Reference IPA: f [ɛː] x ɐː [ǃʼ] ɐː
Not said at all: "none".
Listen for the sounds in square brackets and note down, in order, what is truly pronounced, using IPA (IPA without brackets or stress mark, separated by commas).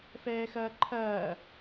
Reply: ɛː, ǃʰ